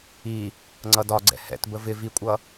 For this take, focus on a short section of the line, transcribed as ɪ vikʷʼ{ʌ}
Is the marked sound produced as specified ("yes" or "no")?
yes